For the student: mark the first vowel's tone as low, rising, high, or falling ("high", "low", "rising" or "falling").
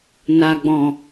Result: low